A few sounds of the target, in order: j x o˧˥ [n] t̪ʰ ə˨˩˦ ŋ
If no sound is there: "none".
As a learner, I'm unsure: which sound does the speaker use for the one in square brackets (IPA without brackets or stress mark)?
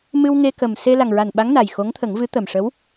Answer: ŋ